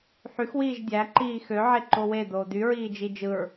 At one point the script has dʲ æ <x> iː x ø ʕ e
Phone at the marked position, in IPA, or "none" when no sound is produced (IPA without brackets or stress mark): ǃ